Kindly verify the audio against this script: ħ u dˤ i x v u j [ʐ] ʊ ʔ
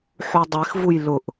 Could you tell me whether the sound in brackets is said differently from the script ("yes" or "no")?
yes